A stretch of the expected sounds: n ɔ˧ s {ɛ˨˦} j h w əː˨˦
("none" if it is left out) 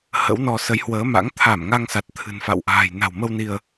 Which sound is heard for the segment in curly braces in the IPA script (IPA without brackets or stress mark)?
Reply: ə˨˦